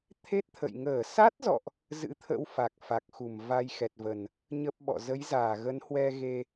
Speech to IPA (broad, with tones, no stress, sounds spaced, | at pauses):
t̪ʰ e˦˥ t̚ t̪ʰ ə̰˧˨ j ŋ əː˧˩ s a˦˥ t̚ z ɔ̰˧˨ ʔ | z ɨ̰˧˥ t̪ʰ ə̰˧˥ w f a˨˩ k̚ f a˨˩ k̚ x u˧˩ m v a˧ j x ɛ˨˩ t̚ v ə˨˩ n | ɲ ə˦˥ p̚ ɓ ɔ̰˧˨ z ə˨˦ j z aː˧˩ ɣ ə˨˦ n h w ɛ˧ ɣ e˧